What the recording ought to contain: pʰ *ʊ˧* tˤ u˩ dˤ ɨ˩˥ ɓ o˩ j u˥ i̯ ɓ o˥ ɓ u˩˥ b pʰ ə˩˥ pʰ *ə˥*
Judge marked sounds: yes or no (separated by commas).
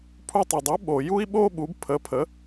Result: no, no